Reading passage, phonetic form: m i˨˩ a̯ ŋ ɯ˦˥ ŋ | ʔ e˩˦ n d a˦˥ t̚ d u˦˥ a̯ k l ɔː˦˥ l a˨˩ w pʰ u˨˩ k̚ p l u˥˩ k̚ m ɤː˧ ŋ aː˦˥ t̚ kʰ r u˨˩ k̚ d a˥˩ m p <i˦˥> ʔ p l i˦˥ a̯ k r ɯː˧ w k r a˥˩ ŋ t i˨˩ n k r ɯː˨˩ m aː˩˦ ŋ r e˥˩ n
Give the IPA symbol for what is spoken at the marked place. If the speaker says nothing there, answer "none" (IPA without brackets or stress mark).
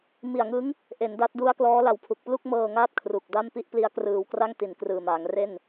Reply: i˥˩